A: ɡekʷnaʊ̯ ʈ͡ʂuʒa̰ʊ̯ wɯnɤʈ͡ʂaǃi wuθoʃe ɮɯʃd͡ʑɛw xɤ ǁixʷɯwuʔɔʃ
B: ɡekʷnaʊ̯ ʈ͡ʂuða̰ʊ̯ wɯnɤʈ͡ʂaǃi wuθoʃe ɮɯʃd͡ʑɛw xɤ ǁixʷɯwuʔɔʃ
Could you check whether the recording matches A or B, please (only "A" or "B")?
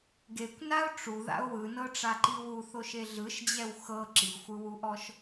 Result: B